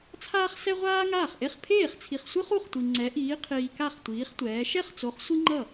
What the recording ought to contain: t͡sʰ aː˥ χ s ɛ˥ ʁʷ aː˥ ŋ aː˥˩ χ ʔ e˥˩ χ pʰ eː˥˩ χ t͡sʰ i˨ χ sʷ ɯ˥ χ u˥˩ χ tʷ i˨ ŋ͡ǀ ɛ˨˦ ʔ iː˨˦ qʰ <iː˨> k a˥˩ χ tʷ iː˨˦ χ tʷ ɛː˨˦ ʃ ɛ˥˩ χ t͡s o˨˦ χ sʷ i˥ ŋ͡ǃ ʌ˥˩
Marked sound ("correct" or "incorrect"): correct